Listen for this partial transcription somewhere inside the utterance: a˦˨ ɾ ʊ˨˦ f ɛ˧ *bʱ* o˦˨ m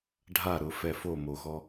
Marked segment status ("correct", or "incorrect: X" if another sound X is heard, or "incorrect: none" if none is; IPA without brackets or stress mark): incorrect: f